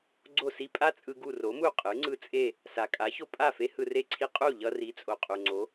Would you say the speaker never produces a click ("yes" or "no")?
no